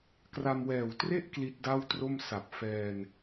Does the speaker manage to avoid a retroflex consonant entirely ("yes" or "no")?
yes